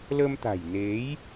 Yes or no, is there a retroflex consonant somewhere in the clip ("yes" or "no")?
no